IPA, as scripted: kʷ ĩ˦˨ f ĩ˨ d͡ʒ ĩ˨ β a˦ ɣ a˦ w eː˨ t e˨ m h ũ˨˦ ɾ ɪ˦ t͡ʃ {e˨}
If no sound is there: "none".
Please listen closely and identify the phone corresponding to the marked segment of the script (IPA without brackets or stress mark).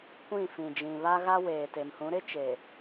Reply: eː˨